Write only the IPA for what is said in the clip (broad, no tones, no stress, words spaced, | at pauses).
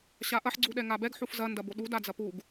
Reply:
ɕaʔɐħ ɡ͡ǀuɗɛŋabɛɡ ħufzɐ ndɐboɗu dad͡zɐpuɡ